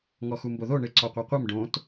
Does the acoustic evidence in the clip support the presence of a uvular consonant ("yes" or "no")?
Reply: yes